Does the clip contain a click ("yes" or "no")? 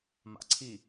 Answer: yes